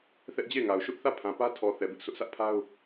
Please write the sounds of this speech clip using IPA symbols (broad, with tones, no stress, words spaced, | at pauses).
θɛ˦ʔd͡ʑe˦˨ɪ̯ŋa˨ʊ̯ ʃʊ˦ʔθä˦˨ pʰã˨ pä˦tʰɔ˨ θɛ˨bɪ˦ʔsʊ˦ʔ sʰä˦ʔpʰa˦ʊ̯